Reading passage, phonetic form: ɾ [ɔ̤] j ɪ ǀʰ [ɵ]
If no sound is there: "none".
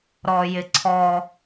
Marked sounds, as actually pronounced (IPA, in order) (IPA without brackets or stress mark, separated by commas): ɔ, ɔ